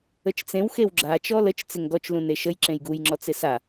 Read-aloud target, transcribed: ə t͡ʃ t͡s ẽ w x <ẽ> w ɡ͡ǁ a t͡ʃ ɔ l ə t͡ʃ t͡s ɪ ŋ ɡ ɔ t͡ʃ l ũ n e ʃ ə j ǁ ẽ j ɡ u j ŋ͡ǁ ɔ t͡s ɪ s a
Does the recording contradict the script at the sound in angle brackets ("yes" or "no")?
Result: yes